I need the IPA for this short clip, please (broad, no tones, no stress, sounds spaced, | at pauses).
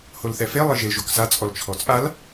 h o l θ ɛ f e lˠ ɪ ʒ ɪ l ʒ o k s a t͡sʼ ɔ l t͡ʃʰ ɔ t͡sʼ a l